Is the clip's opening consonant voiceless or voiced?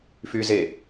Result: voiceless